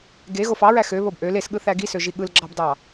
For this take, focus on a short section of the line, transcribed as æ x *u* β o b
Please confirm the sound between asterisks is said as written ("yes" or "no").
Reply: no